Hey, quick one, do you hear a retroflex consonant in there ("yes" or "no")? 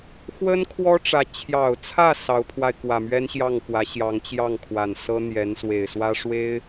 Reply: yes